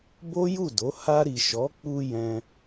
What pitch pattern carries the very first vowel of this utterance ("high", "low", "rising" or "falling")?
high